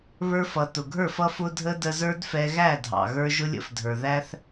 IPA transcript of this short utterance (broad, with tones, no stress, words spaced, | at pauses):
βə˞˧fʌ˨tʊ˨ɡʱə˞˦˨f ʌ˦fʊ˦dʱə˦ də˧zə˞˦d fɛ˧ɣæ˦˨dʱɑ̰˨ ɣə˞˧ ʒʊ˦lʲə̰˦fdʱə˞˨ ðæ˦θ